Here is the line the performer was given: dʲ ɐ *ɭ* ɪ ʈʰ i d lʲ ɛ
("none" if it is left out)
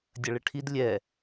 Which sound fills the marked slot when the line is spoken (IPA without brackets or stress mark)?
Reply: ɭ